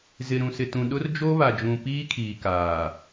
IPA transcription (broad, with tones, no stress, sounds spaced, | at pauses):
z ɪ˨ ɾ ũ˨ s ɪ˨ t ũ˨ ɗ ʊ˦ r d͡ʒ o˦ β a˨ d͡ʒ ũ˨ p iː˦ kʰ iː˨ k aː˨